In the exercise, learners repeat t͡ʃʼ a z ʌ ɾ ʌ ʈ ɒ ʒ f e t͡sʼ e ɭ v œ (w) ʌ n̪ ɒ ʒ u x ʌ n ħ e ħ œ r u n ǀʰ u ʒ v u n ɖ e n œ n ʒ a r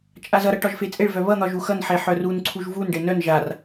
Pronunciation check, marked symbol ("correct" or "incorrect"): incorrect